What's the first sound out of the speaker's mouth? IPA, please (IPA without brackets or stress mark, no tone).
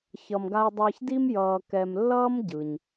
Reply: ç